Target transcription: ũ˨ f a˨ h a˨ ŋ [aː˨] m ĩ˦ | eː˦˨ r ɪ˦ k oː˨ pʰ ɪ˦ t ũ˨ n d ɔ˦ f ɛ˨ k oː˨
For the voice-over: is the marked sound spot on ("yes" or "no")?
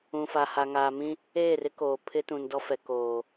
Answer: yes